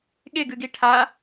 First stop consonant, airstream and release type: implosive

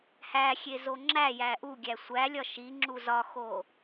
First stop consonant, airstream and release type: click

